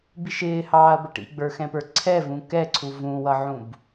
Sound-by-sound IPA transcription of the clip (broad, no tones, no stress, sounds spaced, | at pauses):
b i ʃ ɪː h ɑː ɐ̯ b ə ʈ ḭ ɡ͡b ə˞ x ɛ̃ p ə˞ ǀʰ ɛ v ũ k ɛ ǀʰ u v ũ w ʌ ʕ ũ b